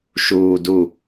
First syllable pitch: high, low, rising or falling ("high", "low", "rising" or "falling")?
low